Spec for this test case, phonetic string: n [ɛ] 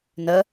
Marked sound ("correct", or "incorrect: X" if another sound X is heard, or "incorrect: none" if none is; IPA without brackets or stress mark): incorrect: ə